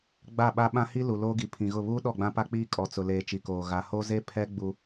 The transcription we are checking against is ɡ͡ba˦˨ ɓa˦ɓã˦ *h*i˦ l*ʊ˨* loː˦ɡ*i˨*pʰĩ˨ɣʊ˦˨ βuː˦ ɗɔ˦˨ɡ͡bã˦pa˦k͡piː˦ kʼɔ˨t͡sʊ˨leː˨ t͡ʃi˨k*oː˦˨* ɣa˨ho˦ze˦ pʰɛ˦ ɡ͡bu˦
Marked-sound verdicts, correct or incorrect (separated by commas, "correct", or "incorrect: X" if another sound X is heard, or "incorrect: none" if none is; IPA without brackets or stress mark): correct, incorrect: u˨, correct, incorrect: oː˨